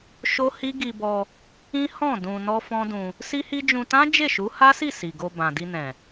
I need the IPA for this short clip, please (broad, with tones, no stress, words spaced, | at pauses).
ʃo˦hi˦ ɡi˧bɔ˧ | ĩ˦hɔ̃˦˨ dũ˧nɔ˦ fɔ̃˦dũ˧ | si˦hi˦ d͡ʒũ˧tã˦ d͡ʒe˦˨ʃu˨˦ha˦si˦˨ si˨ɡo˧ bã˨di˧nɛ̃˨